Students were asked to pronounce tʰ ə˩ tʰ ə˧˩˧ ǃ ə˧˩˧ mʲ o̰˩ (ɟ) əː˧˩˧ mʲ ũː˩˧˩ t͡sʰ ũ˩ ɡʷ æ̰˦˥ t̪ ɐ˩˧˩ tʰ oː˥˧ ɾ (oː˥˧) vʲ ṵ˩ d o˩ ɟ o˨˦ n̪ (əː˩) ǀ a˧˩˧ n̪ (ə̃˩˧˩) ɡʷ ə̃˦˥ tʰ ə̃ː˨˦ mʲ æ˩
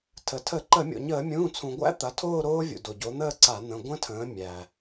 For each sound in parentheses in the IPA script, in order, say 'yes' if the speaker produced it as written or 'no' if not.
no, no, no, yes

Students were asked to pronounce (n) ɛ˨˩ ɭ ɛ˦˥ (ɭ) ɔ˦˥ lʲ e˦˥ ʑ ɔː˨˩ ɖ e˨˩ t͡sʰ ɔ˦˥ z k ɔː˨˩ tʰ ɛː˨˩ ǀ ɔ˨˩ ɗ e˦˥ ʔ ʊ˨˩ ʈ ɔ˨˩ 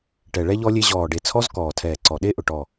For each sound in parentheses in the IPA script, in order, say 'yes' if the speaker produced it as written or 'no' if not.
no, no

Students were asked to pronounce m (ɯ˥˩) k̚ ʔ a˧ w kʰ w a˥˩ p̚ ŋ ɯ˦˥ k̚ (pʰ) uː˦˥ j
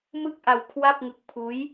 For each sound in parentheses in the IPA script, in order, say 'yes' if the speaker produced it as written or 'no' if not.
yes, yes

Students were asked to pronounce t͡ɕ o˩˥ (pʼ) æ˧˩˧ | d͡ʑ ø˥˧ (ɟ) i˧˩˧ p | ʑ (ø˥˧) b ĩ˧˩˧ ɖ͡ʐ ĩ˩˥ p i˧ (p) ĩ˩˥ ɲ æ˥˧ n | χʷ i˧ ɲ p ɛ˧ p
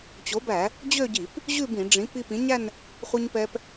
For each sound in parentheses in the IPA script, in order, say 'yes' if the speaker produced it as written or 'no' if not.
no, yes, no, yes

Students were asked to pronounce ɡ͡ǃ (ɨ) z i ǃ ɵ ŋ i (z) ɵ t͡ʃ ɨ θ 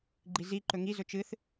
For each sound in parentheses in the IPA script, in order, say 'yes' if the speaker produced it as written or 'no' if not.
no, yes

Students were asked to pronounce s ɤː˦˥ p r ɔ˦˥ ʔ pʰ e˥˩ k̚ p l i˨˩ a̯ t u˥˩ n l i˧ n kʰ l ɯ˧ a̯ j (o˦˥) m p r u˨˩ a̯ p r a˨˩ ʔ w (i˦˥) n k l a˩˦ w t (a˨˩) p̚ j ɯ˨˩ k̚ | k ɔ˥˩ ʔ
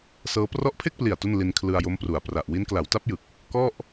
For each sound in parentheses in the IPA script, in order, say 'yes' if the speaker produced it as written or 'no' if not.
yes, yes, no

